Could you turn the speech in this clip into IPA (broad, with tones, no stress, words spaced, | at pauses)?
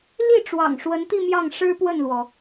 li˥˩ʈ͡ʂwɑ̰˨˩ŋ ʂwə˧˥nt̪i˥˧ mjɑ˥˩ŋ ʂɻ̩˥pwə˥˩nlwɔ˩